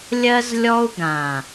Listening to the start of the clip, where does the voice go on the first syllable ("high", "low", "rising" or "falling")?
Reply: high